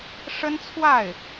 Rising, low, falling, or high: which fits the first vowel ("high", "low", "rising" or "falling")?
high